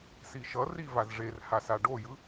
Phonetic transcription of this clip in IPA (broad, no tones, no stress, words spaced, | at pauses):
siʃʌri vazʐerha saɖojɯ